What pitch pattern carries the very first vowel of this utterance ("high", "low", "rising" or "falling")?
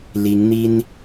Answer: rising